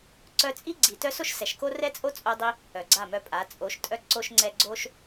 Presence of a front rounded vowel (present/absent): present